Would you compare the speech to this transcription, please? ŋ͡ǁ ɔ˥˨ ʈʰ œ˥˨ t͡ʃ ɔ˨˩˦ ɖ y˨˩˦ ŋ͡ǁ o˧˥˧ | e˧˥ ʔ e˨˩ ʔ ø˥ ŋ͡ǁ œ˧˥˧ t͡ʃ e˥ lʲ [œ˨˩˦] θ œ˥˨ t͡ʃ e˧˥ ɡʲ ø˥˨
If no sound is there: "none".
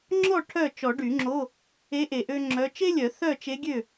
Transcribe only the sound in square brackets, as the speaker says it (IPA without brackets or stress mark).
œ˨˩˦